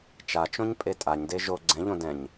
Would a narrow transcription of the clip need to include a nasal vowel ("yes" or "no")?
yes